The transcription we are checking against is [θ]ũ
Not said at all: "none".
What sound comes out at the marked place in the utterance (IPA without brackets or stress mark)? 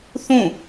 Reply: θ